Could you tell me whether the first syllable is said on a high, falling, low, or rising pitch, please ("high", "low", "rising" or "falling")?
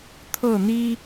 falling